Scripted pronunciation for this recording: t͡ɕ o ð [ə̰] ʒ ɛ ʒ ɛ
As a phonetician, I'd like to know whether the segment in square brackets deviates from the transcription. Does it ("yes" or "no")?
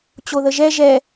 yes